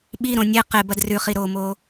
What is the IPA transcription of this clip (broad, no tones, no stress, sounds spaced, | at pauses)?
ɓ i ɾ õ nʲ e q e b ɐ d r ʉ χ i ɾ oː m oː